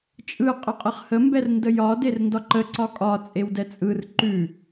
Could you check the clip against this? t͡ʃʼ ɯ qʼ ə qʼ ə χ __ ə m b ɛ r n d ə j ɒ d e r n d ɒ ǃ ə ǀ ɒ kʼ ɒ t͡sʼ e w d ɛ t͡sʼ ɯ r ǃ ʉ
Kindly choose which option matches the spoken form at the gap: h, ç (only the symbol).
h